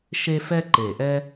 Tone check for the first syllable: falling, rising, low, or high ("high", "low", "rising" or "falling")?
high